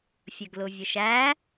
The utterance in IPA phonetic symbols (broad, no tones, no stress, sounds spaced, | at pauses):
fʲ ə ɡ l ʊ vʲ ə ʃ æ